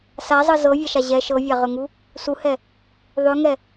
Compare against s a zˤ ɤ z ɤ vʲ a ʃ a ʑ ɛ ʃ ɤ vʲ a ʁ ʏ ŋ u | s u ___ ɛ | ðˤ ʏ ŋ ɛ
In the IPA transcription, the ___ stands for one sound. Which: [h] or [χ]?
h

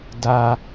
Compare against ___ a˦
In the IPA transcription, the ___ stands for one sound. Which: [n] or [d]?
d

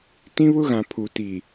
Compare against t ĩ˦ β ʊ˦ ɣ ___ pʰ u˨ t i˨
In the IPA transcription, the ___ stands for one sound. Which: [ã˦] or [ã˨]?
ã˨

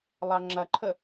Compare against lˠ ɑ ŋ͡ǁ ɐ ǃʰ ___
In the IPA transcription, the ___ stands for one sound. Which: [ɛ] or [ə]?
ə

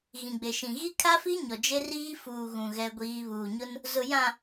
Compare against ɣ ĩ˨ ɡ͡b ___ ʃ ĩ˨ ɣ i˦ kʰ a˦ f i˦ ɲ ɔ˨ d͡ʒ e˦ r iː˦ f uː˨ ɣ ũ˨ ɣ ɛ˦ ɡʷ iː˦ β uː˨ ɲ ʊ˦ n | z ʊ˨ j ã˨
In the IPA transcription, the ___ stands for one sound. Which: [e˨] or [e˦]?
e˨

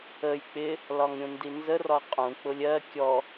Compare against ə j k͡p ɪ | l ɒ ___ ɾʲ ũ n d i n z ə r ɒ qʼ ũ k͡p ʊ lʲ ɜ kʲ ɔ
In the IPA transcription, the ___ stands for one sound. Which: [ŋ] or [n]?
ŋ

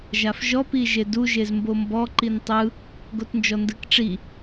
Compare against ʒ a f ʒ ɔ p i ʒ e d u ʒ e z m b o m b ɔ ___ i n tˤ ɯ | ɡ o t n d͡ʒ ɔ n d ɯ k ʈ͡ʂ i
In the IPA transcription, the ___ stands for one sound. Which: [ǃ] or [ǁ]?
ǃ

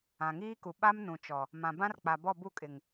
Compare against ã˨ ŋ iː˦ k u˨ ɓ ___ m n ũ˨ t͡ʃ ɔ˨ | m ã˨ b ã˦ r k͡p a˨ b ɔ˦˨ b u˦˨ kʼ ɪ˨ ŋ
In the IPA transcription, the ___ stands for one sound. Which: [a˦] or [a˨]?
a˦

